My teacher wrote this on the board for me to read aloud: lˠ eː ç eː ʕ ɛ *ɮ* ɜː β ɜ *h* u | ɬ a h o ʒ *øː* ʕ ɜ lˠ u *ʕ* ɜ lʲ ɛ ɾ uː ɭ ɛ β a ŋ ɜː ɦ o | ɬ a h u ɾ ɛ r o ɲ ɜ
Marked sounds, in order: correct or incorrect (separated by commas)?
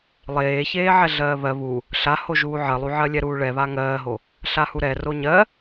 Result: correct, incorrect, incorrect, correct